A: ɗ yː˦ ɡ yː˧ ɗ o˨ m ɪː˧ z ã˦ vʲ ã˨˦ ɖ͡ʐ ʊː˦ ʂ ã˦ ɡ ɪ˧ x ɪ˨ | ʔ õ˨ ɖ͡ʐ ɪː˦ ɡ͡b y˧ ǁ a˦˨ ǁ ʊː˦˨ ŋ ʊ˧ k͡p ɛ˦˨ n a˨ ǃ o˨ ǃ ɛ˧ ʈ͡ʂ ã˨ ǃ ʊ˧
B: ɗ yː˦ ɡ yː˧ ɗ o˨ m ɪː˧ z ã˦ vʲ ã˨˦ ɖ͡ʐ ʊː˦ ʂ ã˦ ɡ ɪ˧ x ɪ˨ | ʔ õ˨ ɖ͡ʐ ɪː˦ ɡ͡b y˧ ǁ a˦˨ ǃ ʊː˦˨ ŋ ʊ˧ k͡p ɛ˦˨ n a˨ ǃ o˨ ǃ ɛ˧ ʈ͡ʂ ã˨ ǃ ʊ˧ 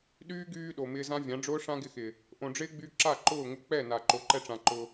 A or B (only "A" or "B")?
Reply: B